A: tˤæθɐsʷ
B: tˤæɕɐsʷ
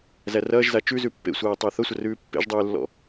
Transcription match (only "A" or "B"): A